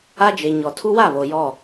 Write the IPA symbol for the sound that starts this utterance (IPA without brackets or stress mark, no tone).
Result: a